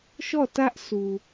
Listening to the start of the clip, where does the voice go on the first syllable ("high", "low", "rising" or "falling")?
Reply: falling